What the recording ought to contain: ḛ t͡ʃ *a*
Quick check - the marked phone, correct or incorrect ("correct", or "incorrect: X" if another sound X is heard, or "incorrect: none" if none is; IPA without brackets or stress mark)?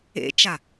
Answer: correct